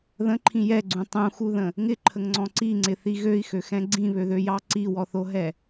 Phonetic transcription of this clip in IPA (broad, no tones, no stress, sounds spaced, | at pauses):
ð ə̃ ǃʰ ĩ j ɛ ɡ͡ǀ ũ tˤ ũ x u ð ə̃ | ŋ ɪ ǃʰ ə ŋ ŋ͡ǀ ɔ̃ ǀ i ŋ͡ǀ ɪ θ i ɣ ø i̯ x ø x ɛ̃ ɡ͡ǀ ĩ β ø ð ø j ɑ ǀ i w ɔ θ o ɦ ɛ